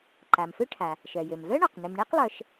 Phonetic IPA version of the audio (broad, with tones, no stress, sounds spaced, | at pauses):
ǃ a˩ m f ø˥ ʈʰ a˩ | ʃ œ˩ j ø˩ m v œ˥ ɳ ɔ˩ q n ø˩ m ɳ e˥ q lˠ œ˩ ʃ